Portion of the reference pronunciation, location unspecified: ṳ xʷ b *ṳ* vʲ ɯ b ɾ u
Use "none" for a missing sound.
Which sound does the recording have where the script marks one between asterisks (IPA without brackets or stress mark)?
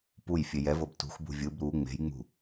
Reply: ṳ